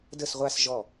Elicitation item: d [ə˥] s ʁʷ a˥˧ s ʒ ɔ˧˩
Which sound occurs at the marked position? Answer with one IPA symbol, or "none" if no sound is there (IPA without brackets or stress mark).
ə˥˧